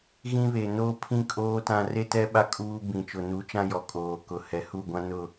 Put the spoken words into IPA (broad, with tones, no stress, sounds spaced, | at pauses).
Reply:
ɣ ĩ˦ β e˨ n oː˦ pʰ ĩ˦ kʼ oː˦ t ã˦ r e˦ t ɛ˦ ɓ a˦ kʼ uː˦ b ĩ˨ t͡ʃ ʊ˨ n u˨˦ t͡ʃ ã˦ j ɔ˨ kʼ oː˨ k ʊ˨ h ɛ˨ h u˦˨ ɡʷ ã˦ n ʊ˦˨